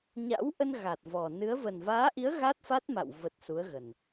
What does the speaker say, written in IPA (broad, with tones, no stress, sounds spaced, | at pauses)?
ɲ a̰˧˥ w ʔ ə˧ n ɣ a˨˩ t̚ v ɔ˨˩ n ɨ˨˦ ə̯ v ə˨˩ n v aː˨˦ ʔ i˨˦ ə̯ ɣ a˦˥ t̚ f a˦˥ t̚ m a̰˧˨ w v ə˨˩ t̚ s u˨˦ ə̯ ɣ ə˨˩ n